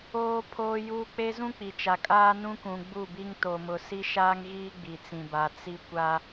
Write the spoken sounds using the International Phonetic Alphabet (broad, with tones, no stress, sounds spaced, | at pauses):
oː˦ pʰ oː˦ j uː˦ k͡p e˦ z ũ˦ k͡p i˨ t͡ʃ a˨ kʼ aː˦ n ũ˦ k ũ˨ ɡ͡b u˦˨ b i˦ ŋ t o˨ m ʊ˨ s i˦ ʃ aː˦ ŋ ɣ iː˦ ɡ͡b i˨ t͡s ĩ˨ b a˨ t͡s i˦ kʷ a˦